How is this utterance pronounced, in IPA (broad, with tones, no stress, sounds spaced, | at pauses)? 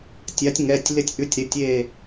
tʲ a˩˥ tʲ ŋ ɛ˩˧˩ tʲ l ɪ˧˩ tʲ ʔ ʉ˩˥ tʲ ɾ ɪ˩˧˩ tʲ e˧˩